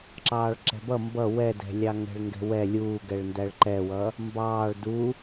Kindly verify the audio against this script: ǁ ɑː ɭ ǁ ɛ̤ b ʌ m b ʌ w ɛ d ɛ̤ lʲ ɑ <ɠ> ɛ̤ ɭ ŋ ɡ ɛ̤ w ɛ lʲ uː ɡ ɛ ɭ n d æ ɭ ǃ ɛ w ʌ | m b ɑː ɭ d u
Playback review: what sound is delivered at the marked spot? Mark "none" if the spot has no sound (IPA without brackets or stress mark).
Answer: ŋ